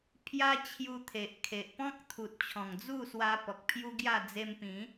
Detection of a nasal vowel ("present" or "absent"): present